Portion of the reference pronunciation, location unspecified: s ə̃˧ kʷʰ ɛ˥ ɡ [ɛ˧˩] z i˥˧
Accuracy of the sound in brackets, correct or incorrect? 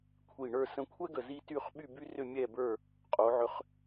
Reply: incorrect